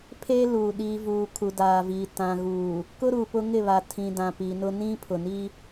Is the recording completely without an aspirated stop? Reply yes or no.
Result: no